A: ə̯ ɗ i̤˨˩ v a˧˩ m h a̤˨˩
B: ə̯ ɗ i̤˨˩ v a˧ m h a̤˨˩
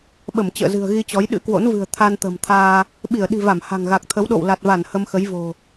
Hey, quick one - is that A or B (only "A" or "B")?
A